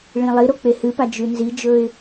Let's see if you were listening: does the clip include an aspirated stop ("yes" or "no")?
no